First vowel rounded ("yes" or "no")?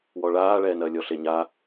yes